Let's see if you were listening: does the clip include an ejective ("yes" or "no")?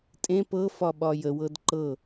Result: yes